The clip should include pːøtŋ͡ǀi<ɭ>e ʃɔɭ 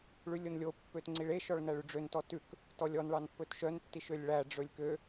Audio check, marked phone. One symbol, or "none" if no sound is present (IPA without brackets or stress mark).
ɭ